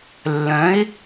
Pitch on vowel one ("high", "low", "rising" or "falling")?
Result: rising